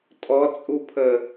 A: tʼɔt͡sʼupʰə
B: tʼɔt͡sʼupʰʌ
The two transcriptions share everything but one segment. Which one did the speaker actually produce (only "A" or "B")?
A